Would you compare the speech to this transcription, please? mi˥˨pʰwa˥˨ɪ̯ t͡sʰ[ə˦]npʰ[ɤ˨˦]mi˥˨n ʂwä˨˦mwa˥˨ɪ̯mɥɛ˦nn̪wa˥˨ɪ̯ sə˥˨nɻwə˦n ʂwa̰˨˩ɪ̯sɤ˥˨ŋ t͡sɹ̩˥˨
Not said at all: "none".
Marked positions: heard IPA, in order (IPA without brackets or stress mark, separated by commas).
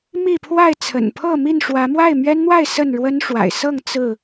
ə̰˨˩, ɤ˥˨